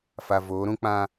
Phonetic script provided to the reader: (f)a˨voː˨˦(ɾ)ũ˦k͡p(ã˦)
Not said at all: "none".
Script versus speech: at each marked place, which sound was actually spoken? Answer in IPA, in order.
f, ɾ, ã˦

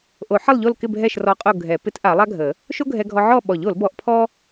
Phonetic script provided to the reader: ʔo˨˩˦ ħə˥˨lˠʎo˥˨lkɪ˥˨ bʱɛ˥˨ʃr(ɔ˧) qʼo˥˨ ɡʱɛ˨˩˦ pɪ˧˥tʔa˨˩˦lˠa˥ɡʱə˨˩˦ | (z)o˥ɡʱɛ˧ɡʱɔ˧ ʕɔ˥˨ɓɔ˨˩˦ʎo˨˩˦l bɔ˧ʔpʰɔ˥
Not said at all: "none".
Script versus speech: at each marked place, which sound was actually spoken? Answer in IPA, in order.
ɔ˧, ʃ

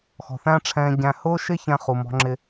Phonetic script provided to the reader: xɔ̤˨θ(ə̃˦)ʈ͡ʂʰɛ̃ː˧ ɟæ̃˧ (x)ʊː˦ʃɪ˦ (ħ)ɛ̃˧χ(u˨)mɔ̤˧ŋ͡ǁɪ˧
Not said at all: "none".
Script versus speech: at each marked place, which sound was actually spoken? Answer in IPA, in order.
æ̃˦, h, ç, u˨

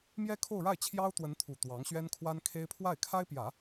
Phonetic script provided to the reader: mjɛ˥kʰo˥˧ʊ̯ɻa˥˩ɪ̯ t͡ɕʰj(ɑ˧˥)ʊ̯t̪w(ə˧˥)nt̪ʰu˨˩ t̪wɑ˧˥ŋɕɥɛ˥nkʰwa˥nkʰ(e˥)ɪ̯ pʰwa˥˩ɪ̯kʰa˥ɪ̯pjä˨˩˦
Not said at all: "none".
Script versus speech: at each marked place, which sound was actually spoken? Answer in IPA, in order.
ɑ˥, ə˧˥, e˥

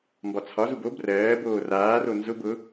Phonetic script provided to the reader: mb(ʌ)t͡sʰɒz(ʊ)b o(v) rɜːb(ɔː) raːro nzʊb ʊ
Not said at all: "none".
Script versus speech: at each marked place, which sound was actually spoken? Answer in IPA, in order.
ɒ, u, b, oː

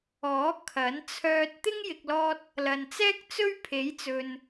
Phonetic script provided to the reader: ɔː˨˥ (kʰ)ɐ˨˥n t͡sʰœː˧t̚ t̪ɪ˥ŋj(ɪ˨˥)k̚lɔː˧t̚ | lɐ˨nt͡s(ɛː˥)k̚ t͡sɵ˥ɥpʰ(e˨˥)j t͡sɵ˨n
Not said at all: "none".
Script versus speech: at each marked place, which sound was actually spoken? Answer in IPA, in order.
kʰ, ɪ˨, ɛː˥, e˨˥

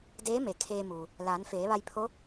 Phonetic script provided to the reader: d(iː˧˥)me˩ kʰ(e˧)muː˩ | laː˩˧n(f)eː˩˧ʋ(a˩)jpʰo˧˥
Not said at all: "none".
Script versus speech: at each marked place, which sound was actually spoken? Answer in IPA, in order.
eː˧˥, eː˧, f, a˧

